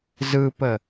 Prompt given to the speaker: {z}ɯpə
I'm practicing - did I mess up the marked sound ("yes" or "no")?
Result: no